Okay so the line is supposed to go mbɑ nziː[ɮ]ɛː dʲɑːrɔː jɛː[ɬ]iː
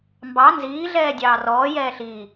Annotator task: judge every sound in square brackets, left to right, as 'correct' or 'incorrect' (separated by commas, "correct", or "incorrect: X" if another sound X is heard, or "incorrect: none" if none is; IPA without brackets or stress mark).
correct, correct